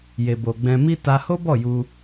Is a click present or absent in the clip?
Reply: absent